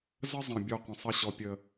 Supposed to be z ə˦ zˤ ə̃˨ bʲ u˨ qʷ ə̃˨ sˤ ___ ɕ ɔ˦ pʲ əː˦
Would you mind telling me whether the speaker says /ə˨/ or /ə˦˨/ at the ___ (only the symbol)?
ə˦˨